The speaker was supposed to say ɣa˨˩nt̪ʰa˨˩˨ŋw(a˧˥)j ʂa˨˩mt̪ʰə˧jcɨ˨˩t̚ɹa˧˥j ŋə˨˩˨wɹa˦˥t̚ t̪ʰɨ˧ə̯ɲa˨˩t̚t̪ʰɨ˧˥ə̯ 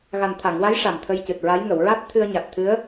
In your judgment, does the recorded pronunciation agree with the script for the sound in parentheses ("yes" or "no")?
yes